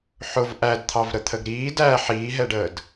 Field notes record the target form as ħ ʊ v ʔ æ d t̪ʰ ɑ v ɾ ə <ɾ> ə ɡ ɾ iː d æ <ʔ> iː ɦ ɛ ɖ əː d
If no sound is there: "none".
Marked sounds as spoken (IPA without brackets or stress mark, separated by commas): t̪ʰ, ħ